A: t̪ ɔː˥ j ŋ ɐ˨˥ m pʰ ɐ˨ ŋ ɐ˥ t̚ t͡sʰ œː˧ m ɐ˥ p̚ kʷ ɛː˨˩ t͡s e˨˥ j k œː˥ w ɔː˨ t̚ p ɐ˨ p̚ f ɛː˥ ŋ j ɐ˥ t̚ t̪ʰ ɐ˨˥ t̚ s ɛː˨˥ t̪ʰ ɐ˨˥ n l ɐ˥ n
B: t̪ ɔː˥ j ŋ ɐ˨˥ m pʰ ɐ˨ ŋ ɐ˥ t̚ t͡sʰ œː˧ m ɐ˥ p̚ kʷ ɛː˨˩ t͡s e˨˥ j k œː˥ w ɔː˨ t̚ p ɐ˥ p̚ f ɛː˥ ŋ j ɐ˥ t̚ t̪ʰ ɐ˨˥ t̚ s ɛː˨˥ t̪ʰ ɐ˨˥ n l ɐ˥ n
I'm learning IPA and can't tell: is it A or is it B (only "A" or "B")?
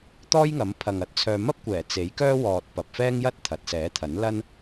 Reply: A